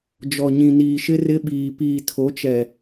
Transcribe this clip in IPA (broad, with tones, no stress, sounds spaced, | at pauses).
d͡ʒ ɔ˨ ɲ ĩ˨ n iː˨ ʃ ɪ˦ r ɪ˦ ɓ iː˨ p iː˨ tʰ o˨˦ t͡ʃ ɛ˨